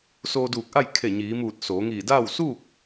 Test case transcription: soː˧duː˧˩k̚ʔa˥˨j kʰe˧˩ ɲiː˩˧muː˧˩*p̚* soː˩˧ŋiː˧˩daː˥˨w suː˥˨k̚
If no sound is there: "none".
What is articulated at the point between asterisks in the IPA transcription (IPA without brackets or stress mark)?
t̚